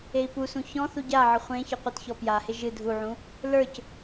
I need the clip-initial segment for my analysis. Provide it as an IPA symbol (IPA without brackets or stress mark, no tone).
e